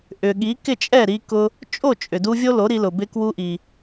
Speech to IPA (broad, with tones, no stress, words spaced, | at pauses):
ʔʏ˩ɠi˩˥ kɪ˥˩t͡ʃʼɛ˥˩ɾi˧kʊ˧ | t͡ʃʼo˥˩t͡ʃʼʏ˩du˧ vʲo˥lo˩˥ɾi˧lʊ˩ bɪ˧ kwu˧ʔi˩